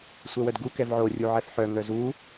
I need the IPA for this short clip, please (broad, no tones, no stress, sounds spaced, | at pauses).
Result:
sʷ ɛ w œ d ɡ u k ɛ v ʕ o rʲ u ʕ ɛ f ħ œ ŋ œ z u